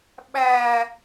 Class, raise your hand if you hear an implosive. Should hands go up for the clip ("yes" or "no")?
yes